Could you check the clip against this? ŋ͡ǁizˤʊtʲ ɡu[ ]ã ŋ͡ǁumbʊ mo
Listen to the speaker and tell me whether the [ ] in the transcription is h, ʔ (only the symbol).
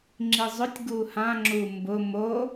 h